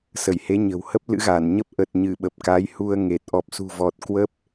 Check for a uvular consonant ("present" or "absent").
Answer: absent